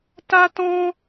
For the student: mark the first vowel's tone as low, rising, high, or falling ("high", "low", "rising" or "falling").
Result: high